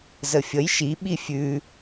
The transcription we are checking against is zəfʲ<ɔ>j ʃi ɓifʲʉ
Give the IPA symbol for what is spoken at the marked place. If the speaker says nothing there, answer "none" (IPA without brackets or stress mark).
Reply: ə